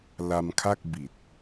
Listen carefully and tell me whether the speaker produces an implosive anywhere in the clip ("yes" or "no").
no